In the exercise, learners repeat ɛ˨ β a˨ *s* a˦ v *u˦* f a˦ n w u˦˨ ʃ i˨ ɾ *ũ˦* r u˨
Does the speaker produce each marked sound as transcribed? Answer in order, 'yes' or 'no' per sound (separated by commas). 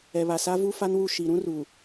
yes, yes, yes